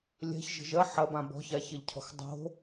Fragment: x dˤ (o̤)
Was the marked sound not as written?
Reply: no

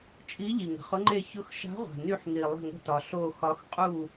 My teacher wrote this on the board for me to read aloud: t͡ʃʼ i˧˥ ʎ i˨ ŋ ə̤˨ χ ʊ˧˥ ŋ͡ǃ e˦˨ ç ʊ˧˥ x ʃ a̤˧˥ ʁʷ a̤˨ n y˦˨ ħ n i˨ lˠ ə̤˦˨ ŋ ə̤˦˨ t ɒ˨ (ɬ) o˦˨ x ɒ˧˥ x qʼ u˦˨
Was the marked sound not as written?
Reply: no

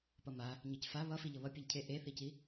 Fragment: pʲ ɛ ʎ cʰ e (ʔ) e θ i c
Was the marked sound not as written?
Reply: no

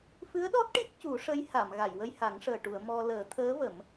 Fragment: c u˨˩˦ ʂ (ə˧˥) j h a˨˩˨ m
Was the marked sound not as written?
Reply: no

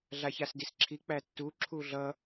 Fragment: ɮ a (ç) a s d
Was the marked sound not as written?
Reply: no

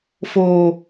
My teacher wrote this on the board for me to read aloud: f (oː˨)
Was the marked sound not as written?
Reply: no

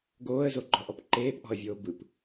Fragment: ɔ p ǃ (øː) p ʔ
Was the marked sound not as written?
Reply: yes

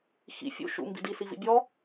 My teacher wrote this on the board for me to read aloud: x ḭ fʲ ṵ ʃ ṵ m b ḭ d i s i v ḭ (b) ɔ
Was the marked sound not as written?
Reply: yes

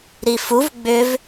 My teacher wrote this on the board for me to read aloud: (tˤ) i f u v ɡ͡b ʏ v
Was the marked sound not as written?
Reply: yes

